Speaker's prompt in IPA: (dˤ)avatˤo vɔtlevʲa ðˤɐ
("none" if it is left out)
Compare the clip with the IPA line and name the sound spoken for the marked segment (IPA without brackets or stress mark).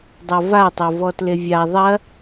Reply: dˤ